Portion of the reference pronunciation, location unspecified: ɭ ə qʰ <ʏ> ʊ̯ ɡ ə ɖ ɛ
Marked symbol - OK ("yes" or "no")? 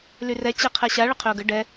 yes